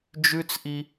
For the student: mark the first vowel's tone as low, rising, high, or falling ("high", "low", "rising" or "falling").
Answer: high